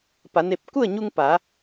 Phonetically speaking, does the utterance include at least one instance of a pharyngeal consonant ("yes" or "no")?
no